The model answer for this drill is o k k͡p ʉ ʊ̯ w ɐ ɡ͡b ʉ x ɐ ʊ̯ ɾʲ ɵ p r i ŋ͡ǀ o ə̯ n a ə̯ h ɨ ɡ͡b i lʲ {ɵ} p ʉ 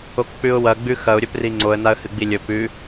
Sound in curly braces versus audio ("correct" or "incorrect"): correct